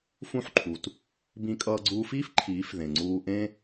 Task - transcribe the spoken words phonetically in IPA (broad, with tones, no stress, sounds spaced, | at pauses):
f ũ˦˨ ħ ǃʰ u˨ t | b ĩ˧ kʼ ʌː˧ ɡ͡ǀ uː˧ f iː˦ f ǃʰ iː˨˦ f ð ẽ˨ ŋ͡ǀ uː˧ ʔ ẽ˦